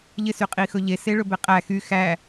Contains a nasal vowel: no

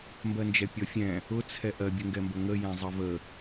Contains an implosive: no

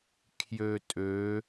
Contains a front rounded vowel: yes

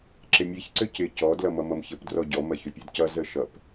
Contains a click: yes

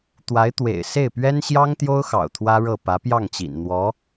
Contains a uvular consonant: no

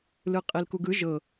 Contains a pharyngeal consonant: no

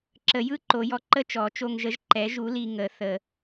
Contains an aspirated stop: no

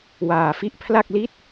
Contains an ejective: no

